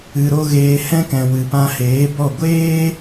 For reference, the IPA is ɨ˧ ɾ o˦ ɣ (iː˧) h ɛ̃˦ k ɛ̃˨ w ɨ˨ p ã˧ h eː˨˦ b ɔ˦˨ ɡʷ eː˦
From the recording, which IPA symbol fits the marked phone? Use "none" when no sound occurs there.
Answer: eː˧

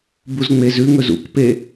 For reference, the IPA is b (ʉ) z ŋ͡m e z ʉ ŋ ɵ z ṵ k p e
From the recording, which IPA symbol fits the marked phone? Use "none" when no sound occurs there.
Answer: u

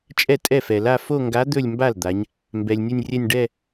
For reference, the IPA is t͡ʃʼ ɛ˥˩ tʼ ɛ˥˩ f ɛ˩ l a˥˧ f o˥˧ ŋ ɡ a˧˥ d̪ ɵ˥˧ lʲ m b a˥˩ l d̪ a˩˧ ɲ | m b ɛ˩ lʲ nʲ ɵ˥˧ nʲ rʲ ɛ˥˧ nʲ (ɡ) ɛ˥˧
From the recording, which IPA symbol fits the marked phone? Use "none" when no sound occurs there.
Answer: ɖ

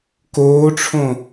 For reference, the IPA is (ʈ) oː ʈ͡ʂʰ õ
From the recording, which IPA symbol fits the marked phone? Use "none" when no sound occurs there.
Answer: k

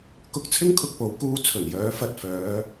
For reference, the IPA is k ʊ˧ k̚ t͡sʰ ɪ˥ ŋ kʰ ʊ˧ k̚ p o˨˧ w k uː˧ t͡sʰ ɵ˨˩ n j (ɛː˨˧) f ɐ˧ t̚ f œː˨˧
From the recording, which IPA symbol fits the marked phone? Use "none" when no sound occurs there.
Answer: œː˨˧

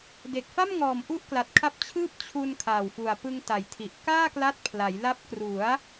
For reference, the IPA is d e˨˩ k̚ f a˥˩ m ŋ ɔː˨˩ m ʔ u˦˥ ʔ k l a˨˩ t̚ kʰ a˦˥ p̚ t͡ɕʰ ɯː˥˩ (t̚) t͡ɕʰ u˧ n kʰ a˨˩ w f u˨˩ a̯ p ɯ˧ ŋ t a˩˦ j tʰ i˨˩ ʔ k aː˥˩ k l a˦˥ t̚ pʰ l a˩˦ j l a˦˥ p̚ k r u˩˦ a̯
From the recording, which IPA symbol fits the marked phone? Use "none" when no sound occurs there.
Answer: p̚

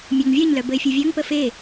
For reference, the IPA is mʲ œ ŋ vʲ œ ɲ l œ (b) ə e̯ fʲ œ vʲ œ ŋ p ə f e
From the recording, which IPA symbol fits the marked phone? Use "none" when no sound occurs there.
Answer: b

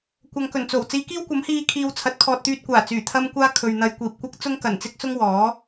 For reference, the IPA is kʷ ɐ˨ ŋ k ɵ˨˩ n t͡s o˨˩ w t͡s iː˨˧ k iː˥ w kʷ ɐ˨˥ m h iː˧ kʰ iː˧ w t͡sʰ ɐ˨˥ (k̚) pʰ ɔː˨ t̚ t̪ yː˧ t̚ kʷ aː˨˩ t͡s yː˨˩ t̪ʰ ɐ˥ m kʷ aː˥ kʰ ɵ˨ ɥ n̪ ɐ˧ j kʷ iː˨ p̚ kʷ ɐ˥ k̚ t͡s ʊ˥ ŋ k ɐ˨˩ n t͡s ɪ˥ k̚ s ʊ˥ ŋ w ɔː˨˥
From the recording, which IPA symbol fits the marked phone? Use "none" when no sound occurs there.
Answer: t̚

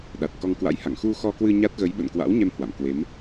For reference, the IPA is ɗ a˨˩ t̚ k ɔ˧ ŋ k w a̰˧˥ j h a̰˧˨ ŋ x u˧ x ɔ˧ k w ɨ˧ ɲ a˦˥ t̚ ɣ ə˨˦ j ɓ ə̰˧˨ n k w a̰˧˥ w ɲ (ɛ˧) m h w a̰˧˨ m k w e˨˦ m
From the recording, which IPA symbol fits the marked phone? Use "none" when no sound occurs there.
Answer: ɛ˧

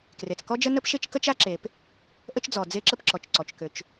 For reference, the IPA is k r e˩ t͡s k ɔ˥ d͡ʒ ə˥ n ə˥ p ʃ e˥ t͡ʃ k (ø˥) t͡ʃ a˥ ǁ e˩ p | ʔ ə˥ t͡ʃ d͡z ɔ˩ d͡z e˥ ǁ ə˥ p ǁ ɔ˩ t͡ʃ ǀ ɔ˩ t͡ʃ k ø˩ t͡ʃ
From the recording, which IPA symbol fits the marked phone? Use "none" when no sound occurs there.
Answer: ə˥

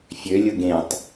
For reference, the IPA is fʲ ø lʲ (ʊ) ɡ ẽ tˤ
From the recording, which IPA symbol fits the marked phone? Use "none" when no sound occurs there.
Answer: ʊ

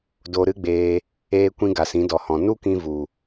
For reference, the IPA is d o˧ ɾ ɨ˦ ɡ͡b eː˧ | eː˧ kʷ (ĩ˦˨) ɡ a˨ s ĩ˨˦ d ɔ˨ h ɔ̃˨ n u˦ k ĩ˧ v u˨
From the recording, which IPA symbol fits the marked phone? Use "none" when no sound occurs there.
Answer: ĩ˧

